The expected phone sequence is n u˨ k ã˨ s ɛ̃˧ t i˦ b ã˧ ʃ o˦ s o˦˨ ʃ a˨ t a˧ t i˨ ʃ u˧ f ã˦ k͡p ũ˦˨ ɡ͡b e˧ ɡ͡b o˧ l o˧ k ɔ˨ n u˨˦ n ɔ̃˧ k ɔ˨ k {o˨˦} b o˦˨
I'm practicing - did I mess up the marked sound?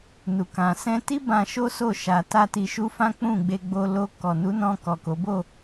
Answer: no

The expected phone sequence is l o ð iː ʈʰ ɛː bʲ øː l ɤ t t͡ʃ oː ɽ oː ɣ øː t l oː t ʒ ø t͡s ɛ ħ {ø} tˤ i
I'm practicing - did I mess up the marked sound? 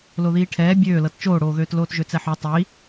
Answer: yes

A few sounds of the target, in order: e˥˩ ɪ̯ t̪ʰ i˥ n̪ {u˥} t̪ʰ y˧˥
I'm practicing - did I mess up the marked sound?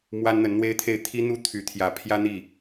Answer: no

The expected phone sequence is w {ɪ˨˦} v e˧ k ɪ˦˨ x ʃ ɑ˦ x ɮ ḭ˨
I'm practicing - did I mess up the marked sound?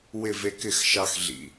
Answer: yes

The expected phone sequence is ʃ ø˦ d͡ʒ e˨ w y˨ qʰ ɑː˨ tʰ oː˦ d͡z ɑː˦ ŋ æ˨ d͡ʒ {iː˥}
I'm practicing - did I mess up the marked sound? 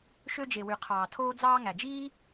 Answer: no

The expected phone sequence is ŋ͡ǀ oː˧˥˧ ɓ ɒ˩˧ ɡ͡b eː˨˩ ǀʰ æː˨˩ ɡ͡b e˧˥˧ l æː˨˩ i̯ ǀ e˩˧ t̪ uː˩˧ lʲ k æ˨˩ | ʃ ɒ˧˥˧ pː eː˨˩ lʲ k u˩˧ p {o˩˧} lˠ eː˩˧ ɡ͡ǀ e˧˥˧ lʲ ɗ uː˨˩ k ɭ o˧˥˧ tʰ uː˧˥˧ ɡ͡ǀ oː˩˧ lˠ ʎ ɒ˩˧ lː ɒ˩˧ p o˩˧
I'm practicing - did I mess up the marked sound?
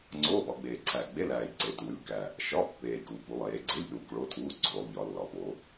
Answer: yes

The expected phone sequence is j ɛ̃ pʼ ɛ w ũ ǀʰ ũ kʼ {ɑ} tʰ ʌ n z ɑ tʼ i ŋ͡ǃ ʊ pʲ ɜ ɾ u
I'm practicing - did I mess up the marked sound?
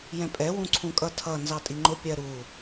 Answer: yes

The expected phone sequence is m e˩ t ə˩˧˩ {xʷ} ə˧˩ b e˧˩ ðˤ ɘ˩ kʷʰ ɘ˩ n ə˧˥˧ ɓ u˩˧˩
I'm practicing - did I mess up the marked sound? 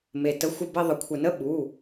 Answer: no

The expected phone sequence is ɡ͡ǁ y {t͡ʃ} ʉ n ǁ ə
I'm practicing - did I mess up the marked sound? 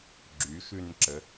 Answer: yes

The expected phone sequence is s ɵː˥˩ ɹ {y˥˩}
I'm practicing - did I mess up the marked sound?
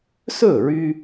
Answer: yes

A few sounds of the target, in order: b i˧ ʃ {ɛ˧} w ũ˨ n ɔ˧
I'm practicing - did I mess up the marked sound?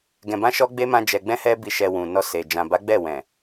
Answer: no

